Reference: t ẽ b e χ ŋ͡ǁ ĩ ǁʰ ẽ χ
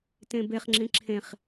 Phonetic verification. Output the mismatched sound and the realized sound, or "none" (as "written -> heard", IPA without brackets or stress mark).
none